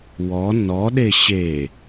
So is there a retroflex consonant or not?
no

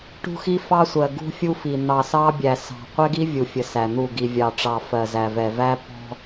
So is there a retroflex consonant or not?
yes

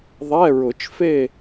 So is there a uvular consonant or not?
no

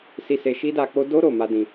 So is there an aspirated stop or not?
no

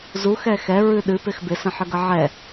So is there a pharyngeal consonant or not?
yes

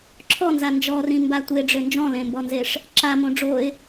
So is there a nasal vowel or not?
yes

